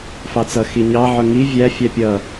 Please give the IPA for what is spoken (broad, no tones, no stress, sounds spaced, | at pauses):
f ɑ t͡s ʌ x i ɲ ɑ ʕ ʊ ŋ i vʲ æ fʲ æ pʲ ʌ